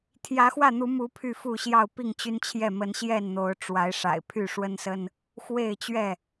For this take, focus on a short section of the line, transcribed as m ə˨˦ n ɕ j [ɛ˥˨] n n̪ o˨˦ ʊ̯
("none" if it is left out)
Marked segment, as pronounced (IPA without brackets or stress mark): ɛ˥˨